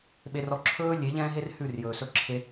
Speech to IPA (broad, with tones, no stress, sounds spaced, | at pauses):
ɓ e˨ r ɔ˨ ǁʰ ɵː˦ lʲ e˨˦ ʎ ɛ̃ː˦ ɦ e˦ r h ʉ˦˨ r j ɵː˨ s ɵ˦ ǁʰ e˦